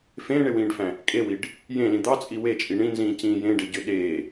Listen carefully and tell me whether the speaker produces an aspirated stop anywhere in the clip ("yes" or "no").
no